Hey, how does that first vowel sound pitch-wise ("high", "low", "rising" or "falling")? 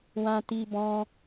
high